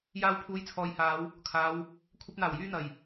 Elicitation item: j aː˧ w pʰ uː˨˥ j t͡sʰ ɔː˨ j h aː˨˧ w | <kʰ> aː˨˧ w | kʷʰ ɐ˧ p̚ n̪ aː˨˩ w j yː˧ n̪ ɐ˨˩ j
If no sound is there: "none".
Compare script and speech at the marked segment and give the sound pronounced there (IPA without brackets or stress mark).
kʰ